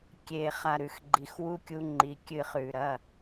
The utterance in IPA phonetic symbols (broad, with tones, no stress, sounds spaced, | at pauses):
kʲ e˨ χ a˨ ɾ ʉ˨ x ɡ͡ǃ i˨ x w u˧ kʲ u˦ ŋ͡ǃ i˧ kʲ ɨ˦˨ χ ʉ˨ ɾ ɐ˦˨